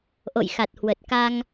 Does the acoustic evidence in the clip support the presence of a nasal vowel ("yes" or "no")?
no